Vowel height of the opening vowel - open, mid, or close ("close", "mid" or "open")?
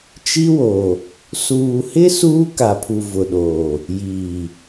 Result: close